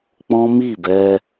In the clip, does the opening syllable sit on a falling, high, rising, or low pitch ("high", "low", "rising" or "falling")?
high